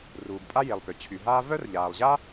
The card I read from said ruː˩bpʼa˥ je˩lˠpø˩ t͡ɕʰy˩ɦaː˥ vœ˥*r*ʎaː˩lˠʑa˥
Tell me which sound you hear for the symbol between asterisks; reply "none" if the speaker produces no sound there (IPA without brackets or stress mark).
r